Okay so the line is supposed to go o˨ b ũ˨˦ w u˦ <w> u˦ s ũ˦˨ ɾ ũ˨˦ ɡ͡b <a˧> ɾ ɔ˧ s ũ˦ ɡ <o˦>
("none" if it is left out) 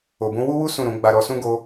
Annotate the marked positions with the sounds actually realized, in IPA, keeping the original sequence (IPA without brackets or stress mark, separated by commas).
w, a˧, o˦